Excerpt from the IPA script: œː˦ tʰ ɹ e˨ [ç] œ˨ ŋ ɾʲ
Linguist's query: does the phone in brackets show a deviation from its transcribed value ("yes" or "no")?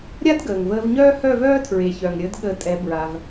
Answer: no